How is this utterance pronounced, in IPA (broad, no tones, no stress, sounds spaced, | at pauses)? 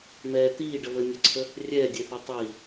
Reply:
m ɛː t̪ iː ɖ ə β ə nʲ ø ǀʰ ə | rʲ ɛː dʲ e θ e tˤ iː